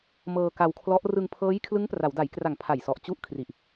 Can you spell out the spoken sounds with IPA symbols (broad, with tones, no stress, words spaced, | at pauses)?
mɤː˧ka˧wkʰlɔ˦˥ʔ rɯ˧ŋpʰɤː˦˥j kʰlɯ˦˥ŋpra˩˦wda˩˦jkra˨˩ŋ pʰa˨˩jsɔ˨˩ʔ t͡ɕu˥˩ʔ kʰri˨˩ʔ